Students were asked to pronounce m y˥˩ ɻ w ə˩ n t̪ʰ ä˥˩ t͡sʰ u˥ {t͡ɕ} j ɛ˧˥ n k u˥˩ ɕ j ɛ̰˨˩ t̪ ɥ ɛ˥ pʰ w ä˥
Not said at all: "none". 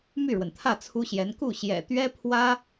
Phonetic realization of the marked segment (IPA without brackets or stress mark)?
ɕ